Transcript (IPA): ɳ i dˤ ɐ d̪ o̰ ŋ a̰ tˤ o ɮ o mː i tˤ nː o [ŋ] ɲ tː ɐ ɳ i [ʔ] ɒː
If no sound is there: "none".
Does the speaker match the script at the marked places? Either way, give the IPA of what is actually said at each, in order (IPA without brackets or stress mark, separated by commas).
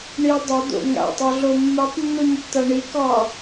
none, k